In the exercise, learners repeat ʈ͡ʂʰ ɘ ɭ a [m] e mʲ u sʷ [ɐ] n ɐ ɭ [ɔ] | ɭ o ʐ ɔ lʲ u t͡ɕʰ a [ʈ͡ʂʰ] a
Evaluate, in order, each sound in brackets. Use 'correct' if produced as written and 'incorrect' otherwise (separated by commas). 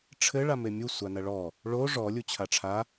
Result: correct, incorrect, correct, correct